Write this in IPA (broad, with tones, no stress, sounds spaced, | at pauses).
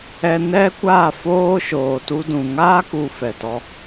ɛ˧ n ɛ˦ kʷ aː˦˨ f oː˦ ʃ oː˨ t u˧ d ũ˨ ŋ aː˦ k u˧ f ɛ˨ t ɔ˧